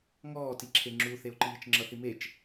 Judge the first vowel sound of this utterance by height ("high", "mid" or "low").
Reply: mid